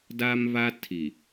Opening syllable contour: high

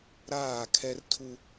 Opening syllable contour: falling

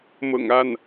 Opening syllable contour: low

